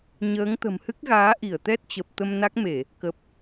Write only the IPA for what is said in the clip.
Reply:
ɲəː˨˦ŋt̪ə̤˨˩mhɨ˦˥k̚ɣaː˨˦ ʔi˧˩ə̯t̪ɛ˦˥t̚t͡ɕə˨˩p̚ t̪ə˧mna˦˥k̚me˧˩˨ | kə˨˩p̚

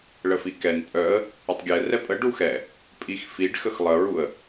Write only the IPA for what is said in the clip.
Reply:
ɭəfikɛn pʼœə̯ | ətˤɡʲɛ rɛpʼə ɖuxɛ | pʼixfiɖxəx lˠəɹuə̯

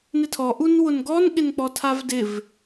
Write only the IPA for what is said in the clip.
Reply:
nɪtʰɔ ʔunwʊnɡɔn ɠɪnk͡pɔtʰavdɪv

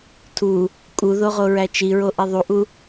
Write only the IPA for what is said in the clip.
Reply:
tʰu | kʼuðoʁoɹæ t͡ʃiɹoʔi ðˤuʔu

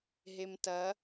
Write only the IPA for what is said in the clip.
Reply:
ɦemtɐ

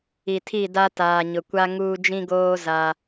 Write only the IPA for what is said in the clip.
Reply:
i˨tʰi˦˨da˦ taː˨ɲʊ˨kʷa˦ ŋuː˦ d͡ʒĩ˦ɡoː˦ za˦

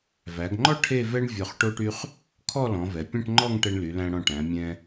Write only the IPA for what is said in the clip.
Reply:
væ˩˧ɡŋ͡ǃɔ˥ ʈʰe˥˧vɛ˥ɳ vʲɔ˧˩χʈo˥ʈy˥χ | kʰɔ˥˧lɔ̃˩˧vɛ˩˧ pʲɛ̃˥˧ʈŋ͡ǃɔ˥˧ŋ ʈɛ˧ɳly˩˧læ̃˧ɽɔ̃˧˩ ʈæ̃˩˧mʲɛ̃˧

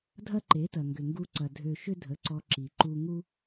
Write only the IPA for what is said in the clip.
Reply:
dʱɐ˦ǃe˨˦tɐ˨ ŋɡʏ˨ŋɡu˧ǀɐ˨ dʱø˨ ʃʏ˦dʱə˨˦ǀɔ˧ ǁi˨ ǃu˧ ŋu˦

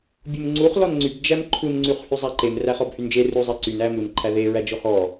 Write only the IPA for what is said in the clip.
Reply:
bʲumŋ͡ǀuχ lɔnŋ͡ǀyb d͡ʒæmǃʰun ŋ͡ǀyχhyzˤæǃem ræχɔbhynd͡ʒe ruzˤeǀyn æmun ǃʰæðe ɹæd͡ʒɔhɔ

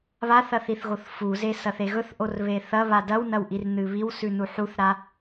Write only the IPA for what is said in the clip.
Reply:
βaθɐ θiθɣoθfuze sɐθeɣɵθʔor βeθɐβa dɐwnɐw ʔirn̪ɨβiwsʉ nuħuθɾa

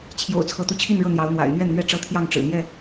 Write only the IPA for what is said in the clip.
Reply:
t͡ɕʰjo̰˨˩ʊ̯t͡sʰɤ˨˦t̪u˨˦t͡ɕʰi˥˨n ɻɤ˥˨n̪jɑ˨˦ʊ̯n̪wa̰˨˩ɪ̯ n̪ɥɛ˥˨nn̪ɥɛ˥˨ ʈ͡ʂɤ˦ t̪ʰjɑ˥˨ŋ ʈ͡ʂɻ̩˨˩n̪jɛ˥˨

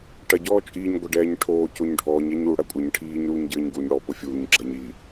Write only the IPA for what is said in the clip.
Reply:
ʈɐ ɟɔːt͡ʃʼiːɲ ɡʷɐɖɛːɲʈʰoː coɲɖʱɔːɲ ɛɲu ɽɐkʷʼɘɲ ʈʰiːɲ ɾuːɲɟɘːɲ ɡuɲ ɽɔ pofʲuːɲ ɡ͡ǁɐɲi

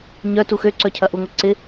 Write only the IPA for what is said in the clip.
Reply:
ɲœ tuxøǀœ cʰɐʔuŋʷɪ ǀɪ

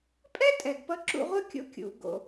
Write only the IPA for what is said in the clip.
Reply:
pʼɛ˥tʼɛ˩ɡ pʌ˧ǁṵ˧ʁʷœ˥kʲo̰˧ kʲṵ˩ɡo̰˩

